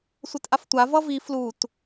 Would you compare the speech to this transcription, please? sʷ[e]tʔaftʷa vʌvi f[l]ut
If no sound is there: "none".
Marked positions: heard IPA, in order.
e, l

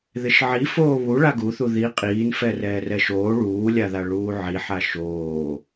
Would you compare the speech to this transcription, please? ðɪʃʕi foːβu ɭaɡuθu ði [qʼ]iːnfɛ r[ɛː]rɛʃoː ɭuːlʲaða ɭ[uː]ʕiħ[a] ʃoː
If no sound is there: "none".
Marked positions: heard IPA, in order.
qʼ, ɛː, uː, a

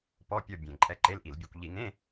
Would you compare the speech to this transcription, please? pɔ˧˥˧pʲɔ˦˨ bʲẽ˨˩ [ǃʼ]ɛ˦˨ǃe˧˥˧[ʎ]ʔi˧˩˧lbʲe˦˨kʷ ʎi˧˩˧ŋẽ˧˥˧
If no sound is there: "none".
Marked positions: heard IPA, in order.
ǃʼ, l

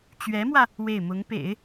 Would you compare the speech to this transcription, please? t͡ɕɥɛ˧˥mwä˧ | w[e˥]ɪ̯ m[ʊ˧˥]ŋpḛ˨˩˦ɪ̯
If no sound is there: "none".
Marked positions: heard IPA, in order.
e˥˩, ʊ˧˥

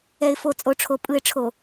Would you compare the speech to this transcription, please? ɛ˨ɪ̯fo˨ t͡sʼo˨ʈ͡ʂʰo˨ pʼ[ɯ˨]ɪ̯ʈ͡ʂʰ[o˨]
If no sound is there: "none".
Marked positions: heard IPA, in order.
ɯ˨, o˨

